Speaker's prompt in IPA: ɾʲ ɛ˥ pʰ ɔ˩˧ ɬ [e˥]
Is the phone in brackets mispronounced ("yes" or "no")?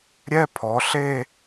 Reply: yes